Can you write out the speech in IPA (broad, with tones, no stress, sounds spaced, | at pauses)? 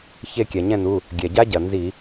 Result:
ç e˦˨ kʲ æ˩ ɲ ɛ̃˦˨ n u˩˧˩ | ɡʲ ɛ˩ ɟ a˦˥ ɟ ɐ˩ n z i˧˩˧